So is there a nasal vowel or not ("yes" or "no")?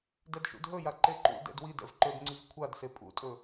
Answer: no